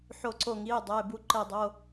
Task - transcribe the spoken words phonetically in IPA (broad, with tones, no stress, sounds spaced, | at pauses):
ħ o˧˩ ǀ o˧˩ ŋ i˩˧˩ dˤ e˩˧˩ b u˧˩ ǃ e˧˩ dˤ o˩˧˩